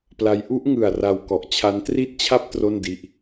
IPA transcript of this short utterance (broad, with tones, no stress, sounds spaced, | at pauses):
p l a˦˥ j ʔ u˦˥ ʔ ŋ ɯ˨˩ a̯ r a˧ w k ɔ˨˩ ʔ t͡ɕʰ a˦˥ n t r i˥˩ t̚ t͡ɕʰ a˥˩ p̚ t r o˥˩ n d i˦˥ ʔ